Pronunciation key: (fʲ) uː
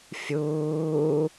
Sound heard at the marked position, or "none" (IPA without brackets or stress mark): fʲ